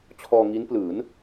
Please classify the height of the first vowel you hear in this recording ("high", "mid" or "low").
mid